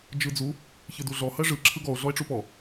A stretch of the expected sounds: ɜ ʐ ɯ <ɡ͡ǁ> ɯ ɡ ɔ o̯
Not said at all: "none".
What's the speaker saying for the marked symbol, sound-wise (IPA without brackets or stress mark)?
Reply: ǁʰ